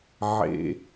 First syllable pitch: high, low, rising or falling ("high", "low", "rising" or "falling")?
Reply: low